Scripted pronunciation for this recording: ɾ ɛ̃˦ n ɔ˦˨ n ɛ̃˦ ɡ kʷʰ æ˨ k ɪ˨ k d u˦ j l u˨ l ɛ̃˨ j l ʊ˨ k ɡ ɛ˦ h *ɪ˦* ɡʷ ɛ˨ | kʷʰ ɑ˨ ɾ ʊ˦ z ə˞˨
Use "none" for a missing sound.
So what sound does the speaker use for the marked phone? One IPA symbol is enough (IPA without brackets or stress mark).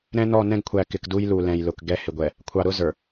ɪ˨